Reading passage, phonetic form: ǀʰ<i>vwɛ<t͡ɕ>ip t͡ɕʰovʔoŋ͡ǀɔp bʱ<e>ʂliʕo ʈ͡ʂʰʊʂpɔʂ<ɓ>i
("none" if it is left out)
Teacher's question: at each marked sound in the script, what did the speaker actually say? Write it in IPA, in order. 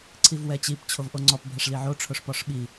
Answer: i, t͡ɕ, ɛ, ɓ

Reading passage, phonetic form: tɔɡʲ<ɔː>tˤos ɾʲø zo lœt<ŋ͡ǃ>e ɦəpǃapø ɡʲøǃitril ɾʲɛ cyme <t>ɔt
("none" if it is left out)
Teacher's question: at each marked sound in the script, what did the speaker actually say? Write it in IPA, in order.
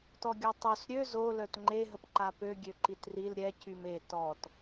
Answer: ɔ, ŋ͡ǃ, t

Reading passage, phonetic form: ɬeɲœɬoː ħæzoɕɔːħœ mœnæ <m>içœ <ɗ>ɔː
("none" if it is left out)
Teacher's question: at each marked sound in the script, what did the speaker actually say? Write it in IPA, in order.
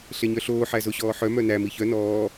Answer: m, n

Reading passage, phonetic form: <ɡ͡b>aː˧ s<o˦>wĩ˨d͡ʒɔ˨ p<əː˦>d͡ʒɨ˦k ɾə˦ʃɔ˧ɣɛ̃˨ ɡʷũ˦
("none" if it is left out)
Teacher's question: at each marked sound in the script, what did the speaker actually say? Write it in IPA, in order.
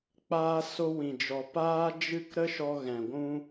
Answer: k͡p, o˧, aː˦

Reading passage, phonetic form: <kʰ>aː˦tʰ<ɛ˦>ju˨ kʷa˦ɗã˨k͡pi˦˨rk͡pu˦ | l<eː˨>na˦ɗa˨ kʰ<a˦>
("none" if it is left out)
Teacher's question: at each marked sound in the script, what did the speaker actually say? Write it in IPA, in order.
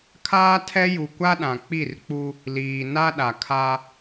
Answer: kʰ, ɛ˦, iː˨, a˦

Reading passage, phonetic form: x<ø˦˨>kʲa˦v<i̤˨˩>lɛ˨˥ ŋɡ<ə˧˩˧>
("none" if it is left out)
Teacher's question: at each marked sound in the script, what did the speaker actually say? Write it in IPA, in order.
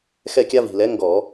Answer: ɛ˦˨, i̤˨˩, ɔ˧˩˧

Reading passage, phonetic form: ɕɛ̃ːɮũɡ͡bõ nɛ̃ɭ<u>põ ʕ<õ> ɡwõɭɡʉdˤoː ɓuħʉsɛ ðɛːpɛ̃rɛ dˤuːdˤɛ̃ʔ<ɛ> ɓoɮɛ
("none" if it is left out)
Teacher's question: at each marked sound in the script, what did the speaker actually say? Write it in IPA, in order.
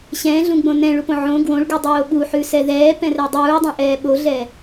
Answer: u, õ, ɛː

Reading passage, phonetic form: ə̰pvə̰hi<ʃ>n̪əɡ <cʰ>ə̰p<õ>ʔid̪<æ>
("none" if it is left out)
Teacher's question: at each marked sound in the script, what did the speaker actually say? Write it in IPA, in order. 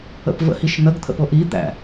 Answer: ʃ, t̪ʰ, o, æ̰

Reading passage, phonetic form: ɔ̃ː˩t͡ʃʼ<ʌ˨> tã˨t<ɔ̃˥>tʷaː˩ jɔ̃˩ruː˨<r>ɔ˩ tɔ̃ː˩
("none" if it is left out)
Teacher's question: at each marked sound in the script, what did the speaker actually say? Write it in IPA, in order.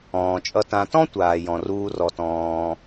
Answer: ʌ˨, ɔ̃˥, r

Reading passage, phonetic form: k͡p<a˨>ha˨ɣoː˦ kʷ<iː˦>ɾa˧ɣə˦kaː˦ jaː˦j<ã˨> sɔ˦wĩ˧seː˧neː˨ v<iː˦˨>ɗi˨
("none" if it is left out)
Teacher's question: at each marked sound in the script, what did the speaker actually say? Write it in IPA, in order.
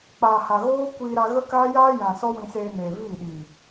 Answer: aː˨, iː˧, ã˨, iː˦˨

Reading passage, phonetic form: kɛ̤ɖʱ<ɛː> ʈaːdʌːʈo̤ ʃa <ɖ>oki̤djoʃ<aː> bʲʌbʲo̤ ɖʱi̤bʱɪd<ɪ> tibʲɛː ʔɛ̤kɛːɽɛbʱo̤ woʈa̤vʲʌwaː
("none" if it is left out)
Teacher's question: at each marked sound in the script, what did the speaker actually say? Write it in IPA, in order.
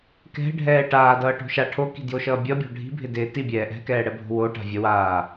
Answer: ɛː, ʈʰ, ʌː, ɪː

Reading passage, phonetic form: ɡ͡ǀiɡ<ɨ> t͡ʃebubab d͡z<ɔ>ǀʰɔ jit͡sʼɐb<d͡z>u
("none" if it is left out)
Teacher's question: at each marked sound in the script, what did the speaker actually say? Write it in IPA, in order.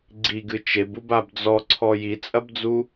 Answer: ɨ, ɔ, d͡z

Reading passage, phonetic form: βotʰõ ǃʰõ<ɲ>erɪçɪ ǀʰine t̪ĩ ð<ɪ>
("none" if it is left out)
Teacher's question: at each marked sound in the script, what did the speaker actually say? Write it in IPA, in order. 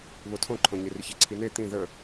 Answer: ɲ, ə

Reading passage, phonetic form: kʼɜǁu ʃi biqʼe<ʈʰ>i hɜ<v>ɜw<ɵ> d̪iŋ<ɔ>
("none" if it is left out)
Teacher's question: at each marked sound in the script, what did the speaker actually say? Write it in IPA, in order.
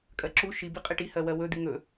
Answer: ʈ, w, ɵ, ɵ

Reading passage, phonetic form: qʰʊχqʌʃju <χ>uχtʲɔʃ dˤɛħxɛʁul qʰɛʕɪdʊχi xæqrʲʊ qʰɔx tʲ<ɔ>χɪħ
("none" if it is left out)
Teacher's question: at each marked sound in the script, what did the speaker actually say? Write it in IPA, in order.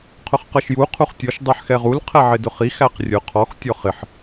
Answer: qʰ, ɔ

